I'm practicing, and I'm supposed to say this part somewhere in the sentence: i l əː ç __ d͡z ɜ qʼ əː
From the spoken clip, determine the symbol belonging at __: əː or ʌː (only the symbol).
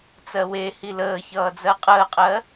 ʌː